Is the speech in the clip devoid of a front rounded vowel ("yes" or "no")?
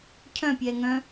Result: no